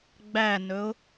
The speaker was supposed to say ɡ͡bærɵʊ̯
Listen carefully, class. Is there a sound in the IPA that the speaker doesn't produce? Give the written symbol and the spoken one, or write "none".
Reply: r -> n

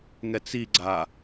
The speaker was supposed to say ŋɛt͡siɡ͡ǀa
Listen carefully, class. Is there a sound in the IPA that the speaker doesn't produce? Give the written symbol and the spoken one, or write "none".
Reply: none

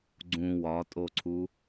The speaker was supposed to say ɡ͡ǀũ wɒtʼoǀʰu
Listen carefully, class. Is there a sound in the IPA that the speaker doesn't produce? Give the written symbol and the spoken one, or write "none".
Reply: none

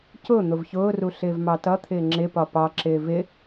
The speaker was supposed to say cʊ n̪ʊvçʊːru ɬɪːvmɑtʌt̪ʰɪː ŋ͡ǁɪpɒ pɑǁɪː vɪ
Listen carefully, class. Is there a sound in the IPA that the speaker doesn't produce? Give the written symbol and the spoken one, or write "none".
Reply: none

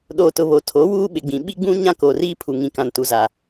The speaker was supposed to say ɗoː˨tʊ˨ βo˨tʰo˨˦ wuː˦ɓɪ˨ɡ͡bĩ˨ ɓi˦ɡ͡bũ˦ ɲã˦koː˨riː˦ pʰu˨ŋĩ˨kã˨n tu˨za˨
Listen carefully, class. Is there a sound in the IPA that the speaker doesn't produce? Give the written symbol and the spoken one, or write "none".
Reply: none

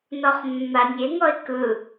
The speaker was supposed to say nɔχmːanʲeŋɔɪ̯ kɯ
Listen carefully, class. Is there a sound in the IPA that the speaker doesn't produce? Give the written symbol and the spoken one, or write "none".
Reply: none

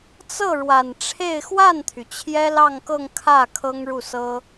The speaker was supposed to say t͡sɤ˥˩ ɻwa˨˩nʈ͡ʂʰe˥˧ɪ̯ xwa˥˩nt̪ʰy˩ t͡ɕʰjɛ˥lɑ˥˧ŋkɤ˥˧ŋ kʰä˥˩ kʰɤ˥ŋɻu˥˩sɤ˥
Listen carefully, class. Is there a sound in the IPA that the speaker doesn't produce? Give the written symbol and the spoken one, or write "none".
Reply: none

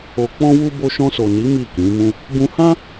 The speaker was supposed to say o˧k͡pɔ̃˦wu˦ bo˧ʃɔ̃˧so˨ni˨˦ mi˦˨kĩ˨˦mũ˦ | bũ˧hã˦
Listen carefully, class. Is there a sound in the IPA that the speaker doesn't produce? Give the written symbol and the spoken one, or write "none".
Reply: none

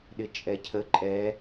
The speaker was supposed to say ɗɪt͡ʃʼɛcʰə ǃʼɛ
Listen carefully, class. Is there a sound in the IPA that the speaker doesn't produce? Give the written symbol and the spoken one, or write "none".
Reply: none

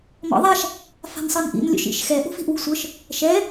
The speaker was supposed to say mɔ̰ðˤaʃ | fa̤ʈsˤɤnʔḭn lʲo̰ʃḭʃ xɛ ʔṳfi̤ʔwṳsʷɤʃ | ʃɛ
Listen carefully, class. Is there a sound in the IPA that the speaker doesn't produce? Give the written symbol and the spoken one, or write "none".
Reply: ʈ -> n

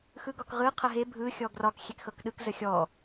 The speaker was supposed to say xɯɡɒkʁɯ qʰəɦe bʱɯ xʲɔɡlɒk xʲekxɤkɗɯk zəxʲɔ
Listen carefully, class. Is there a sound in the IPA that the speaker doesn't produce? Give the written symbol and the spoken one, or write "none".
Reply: l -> r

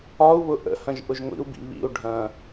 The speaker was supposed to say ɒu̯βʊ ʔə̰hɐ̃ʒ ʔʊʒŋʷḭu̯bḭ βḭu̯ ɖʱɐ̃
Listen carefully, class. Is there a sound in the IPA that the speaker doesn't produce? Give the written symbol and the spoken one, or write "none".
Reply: none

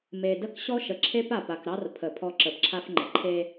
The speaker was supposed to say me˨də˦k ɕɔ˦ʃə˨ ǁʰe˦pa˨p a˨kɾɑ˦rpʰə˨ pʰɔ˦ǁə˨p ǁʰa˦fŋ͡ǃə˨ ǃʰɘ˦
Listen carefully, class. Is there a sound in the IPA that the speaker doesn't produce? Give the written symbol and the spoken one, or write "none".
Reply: ɘ˦ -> e˦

